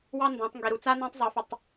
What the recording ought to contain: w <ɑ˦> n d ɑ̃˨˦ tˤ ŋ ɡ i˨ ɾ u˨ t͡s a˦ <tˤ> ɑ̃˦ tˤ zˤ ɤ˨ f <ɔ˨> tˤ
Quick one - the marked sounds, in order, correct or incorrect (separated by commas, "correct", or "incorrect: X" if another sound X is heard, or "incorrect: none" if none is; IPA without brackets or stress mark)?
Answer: correct, incorrect: n, incorrect: ə˨